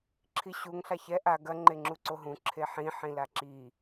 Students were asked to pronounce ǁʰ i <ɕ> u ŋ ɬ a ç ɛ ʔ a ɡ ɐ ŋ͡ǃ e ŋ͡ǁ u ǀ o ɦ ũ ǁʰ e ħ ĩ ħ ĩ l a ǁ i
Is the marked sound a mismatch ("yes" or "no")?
no